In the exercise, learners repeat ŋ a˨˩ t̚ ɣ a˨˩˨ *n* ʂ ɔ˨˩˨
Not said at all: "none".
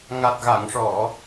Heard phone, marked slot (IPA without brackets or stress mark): ŋ